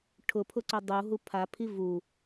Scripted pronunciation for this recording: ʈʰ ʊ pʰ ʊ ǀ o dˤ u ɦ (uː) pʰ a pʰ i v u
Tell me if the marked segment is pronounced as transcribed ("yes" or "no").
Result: no